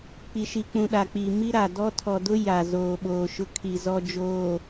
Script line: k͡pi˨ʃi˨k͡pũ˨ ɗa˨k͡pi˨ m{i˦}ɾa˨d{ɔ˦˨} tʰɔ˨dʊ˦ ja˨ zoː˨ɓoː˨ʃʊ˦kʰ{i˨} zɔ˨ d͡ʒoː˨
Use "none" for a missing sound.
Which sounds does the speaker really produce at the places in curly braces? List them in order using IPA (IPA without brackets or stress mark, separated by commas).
i˦, ɔ˦, i˨